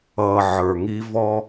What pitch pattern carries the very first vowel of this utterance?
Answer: low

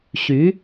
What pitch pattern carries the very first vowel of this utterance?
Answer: rising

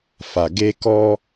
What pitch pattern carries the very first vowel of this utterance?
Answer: low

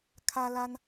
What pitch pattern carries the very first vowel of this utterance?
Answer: high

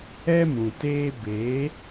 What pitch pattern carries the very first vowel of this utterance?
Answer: high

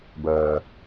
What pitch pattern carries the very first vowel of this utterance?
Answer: low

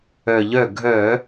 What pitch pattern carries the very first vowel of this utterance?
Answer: low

